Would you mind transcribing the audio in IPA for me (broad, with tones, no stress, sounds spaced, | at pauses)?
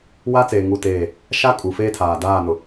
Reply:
w a˦ t͡s eː˨ ŋ u˦˨ t eː˦˨ | ʃ a˦ kʼ u˨ f eː˦ tʰ aː˨ d aː˦˨ n ʊ˨